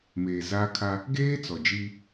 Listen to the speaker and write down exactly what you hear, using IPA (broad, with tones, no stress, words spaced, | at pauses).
meː˨zaː˦ kʰa˦ | ɡeː˦ t͡sɔ˨d͡ʒiː˦